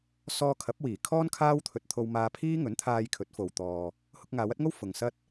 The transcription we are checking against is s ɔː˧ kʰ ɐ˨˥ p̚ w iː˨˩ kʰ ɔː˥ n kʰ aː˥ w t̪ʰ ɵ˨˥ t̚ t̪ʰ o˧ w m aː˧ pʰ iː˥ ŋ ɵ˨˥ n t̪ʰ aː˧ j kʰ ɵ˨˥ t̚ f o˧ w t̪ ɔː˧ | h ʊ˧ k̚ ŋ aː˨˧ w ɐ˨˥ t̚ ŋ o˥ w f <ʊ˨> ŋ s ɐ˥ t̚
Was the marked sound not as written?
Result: no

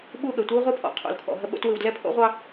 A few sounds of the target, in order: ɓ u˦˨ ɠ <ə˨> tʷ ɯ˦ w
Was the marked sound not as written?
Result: no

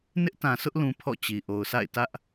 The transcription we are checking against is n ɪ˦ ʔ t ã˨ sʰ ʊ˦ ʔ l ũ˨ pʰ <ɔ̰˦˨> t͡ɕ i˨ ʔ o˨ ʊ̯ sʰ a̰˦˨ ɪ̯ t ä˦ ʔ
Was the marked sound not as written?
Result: no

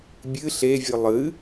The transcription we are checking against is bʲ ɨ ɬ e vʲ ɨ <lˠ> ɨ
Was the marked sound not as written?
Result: no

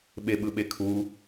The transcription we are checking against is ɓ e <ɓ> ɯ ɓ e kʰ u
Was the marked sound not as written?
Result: no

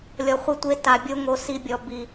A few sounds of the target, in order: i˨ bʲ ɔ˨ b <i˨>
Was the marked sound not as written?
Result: no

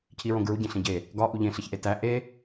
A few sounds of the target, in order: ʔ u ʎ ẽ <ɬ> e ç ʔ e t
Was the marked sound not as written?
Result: no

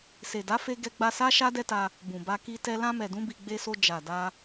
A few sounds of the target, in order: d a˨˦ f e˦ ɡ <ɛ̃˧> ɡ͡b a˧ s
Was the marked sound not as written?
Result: yes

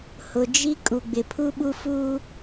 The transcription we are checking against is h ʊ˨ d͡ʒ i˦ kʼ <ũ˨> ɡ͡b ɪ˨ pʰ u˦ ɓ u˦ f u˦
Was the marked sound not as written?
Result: yes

